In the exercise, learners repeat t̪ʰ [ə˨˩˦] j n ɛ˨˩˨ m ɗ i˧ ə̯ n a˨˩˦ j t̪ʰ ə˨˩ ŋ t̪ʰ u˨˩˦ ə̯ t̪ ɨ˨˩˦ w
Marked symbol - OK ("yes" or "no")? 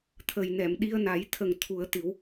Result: no